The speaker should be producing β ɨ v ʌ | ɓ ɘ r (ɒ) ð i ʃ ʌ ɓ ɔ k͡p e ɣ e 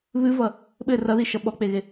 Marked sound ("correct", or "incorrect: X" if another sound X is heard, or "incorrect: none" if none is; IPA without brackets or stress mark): incorrect: ʌ